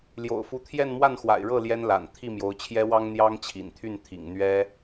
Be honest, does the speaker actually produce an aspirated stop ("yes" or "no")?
yes